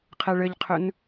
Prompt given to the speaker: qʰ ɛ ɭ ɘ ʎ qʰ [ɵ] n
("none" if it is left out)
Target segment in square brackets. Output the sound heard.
ɵ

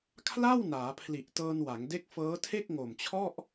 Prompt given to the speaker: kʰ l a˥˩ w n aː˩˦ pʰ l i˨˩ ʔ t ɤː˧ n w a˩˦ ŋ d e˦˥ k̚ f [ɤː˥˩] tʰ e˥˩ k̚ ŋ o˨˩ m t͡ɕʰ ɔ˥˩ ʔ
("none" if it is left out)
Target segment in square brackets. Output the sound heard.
ɤː˦˥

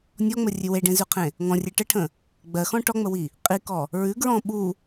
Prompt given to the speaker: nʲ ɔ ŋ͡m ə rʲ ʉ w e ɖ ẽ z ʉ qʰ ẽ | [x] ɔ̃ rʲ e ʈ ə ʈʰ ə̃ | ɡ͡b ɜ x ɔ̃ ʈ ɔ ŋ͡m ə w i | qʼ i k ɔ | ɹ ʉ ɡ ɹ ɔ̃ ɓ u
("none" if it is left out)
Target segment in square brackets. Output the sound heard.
ŋ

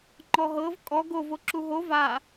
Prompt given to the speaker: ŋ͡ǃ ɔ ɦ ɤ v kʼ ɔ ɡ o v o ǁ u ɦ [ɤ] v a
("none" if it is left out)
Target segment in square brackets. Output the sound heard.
o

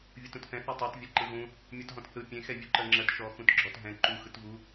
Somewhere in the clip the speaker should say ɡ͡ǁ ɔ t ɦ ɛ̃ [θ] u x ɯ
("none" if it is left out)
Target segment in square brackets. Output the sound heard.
ǃ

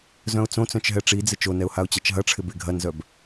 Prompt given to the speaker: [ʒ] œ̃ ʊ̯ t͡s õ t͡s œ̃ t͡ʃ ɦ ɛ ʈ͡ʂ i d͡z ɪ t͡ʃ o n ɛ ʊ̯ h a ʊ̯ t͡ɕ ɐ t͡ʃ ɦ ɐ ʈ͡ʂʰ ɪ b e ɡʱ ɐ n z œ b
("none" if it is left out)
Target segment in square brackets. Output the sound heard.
z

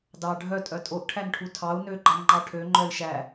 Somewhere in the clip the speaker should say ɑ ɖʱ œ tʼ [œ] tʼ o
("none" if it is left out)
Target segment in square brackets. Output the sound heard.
œ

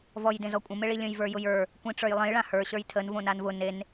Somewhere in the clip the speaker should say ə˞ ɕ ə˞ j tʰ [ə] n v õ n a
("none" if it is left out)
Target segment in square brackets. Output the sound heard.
ə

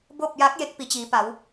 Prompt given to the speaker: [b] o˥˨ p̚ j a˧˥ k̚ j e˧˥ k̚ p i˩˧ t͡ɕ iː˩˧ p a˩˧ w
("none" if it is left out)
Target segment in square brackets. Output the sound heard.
b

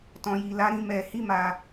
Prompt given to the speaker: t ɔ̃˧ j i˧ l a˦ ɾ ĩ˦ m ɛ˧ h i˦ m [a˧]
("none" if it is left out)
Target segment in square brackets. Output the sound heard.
a˧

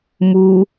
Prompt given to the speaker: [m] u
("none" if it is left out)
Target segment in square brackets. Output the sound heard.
m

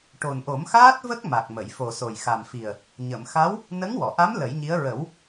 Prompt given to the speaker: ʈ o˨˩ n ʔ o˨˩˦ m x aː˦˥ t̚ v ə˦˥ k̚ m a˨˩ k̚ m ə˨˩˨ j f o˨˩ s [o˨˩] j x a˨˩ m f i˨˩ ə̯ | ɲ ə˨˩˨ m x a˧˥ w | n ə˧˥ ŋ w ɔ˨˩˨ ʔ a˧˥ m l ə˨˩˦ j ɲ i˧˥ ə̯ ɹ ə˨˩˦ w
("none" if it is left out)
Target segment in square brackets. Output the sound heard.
o˨˩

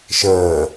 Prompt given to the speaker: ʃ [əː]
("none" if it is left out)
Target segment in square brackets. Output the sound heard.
əː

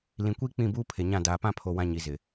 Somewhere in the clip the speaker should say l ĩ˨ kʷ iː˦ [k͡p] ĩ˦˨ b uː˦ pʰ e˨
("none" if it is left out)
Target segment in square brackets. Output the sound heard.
k͡p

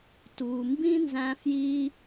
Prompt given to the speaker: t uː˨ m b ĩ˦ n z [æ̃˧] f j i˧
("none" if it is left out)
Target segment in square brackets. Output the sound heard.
æ̃˧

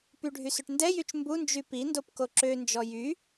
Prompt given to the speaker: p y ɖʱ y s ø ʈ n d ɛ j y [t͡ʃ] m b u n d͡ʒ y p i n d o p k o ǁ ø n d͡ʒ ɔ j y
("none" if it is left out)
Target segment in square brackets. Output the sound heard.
t͡ʃ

